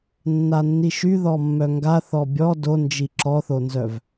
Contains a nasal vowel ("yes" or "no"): no